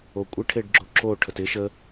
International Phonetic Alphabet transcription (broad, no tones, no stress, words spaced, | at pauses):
okʷʼɪ ʈʰeɖɡ͡ǁoǁo ʈʰətɪ ʃə